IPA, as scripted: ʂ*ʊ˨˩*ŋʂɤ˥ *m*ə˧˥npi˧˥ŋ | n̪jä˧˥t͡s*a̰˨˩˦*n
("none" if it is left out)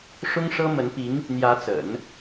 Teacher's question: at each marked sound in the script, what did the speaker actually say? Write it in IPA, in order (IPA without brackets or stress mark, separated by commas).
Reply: ʊ˥, m, ə̰˨˩˦